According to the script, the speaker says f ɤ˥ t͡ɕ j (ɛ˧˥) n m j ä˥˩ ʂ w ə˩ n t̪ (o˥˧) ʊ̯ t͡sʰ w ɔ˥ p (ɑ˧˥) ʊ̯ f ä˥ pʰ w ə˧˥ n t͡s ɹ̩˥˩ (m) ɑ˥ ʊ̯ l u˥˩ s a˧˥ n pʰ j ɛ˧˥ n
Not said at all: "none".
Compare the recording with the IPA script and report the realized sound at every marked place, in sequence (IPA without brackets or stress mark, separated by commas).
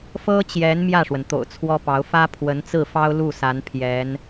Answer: ɛ˧˥, o̰˨˩, ɑ˧˥, f